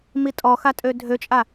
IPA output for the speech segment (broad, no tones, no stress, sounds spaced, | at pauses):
m i tʼ ɔ x a tʼ ø dʱ ø t͡ʃʼ a